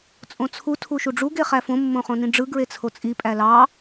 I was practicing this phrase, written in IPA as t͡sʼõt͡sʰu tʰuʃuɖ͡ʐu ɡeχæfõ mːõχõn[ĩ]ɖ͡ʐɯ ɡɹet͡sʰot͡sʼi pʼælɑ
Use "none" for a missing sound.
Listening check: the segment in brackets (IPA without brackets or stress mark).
ĩ